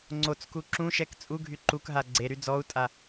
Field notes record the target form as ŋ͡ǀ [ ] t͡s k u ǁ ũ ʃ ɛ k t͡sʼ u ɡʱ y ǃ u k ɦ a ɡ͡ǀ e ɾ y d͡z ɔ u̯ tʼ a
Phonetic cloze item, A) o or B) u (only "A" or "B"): A